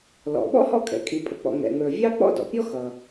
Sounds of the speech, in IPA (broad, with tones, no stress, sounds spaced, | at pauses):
l ɔ̰˩ ɓ ɔ̰˥ h ɔ̰˥ kʼ ɛ̰˩ kʼ i˩ pʼ ə˩ k͡p ɔ̰˩ ŋ ɛ̰˩ ŋ ə˞˩ vʲ ɑ˥ k͡p ɔ̰˥ d ɔ̰˩ pʲ ɔ˥ x ʌ˩